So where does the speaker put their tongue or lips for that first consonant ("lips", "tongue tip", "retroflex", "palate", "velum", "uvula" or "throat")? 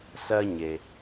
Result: tongue tip